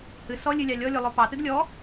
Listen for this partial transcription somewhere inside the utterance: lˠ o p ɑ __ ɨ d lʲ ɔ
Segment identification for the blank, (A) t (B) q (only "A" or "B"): A